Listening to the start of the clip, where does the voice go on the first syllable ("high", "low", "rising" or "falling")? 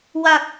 low